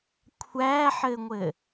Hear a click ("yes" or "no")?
no